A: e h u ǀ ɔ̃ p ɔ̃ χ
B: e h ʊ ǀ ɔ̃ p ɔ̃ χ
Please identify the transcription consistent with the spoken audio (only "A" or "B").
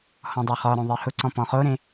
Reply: B